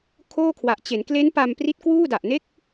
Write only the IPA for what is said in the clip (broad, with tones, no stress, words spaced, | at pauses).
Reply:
kʰoː˥˩kʰwa˨˩ʔ t͡ɕe˩˦nkle˦˥n pa˧mpri˦˥t̚ kwuː˥˩da˨˩ʔne˥˩k̚